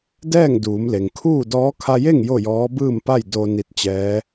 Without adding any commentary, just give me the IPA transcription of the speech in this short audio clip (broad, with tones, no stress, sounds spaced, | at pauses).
d ɛː˥˨ ŋ d uː˩˧ m l e˩ ŋ kʰ uː˥˨ d ɔː˧˥ kʰ a˧ j e˥˨ ŋ j o˥˨ j ɔː˧˥ b ɯː˥˨ m p a˥˨ j d o˧ n i˧˥ t̚ t͡ɕ ɛː˧˥